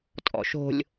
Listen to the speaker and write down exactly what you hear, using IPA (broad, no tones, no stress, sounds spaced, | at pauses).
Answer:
tʼ ɔ̰ ʃ o̤ lʲ